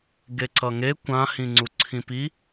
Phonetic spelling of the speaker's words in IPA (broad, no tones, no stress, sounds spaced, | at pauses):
ɡ e ǀ ʌ ŋ e kʷ ã h ĩ ŋ͡ǀ u ǀʰ ĩ p i